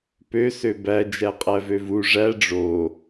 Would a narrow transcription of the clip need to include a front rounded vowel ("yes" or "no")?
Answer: yes